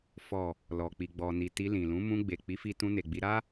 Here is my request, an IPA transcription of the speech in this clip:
f ɔ˨ | l ɔ˨ k͡p i˨ ɡ͡b ɔ˨ n i˨ t i˧ l ĩ˨ l ũ˨˦ m ũ˧ ɡ͡b e˨ k͡p i˨˦ f i˧ t ũ˧ n e˨ ɡ͡b i˧ ɾ a˦

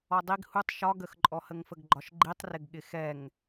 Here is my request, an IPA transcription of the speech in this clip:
ɔ dˤ i ɡ h u tˤ ʃ ɒ ɡ ə x ǃʼ ɔ h ə ŋ f ə ɡ ɡ͡ǃ ɒ ʃ ɡ͡ǃ i tˤ r ɪ ɡ ɠ ɪ x ɛ ŋ

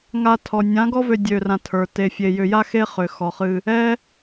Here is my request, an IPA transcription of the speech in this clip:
ŋ a˧ tʰ ɔ˨ nʲ ã˨˦ ɡ ɔ˦ v ø˧ dʲ ø˧ r ã˧ tʰ ə˞˨ t e˨ fʲ e˨ j ʏ˧ j a˦ x e˦ χ ʏ˨ x ɔ˨ χ ɨ˧ | ɛ˦

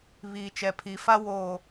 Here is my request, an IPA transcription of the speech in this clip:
β iː˨ t͡ʃ ɛ˨ pʰ i˨ f a˦ w o˨

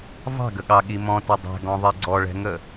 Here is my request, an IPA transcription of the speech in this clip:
v ɑ̤ ɡ ə ɠ ɑ ɠ i m ɔ̃ t ʏ dˤ ɛ̤ ɡ ɔ̃ ðˤ i ɡ͡ǀ ɔ ɭ ɛ̤ ŋ ə

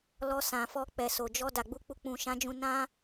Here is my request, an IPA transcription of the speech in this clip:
l ɔ˧ s ã˨ f ɔ˧ k͡p ɛ˨ s o˨ d͡ʒ ɔ˧ d a˨ ɡ͡b u˧ k͡p u˧ k͡p ũ˨ ʃ ã˨˦ d͡ʒ ũ˧ n ã˦

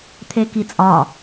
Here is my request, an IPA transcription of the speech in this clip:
t̪ʰ e k i t͡sʼ ɒ

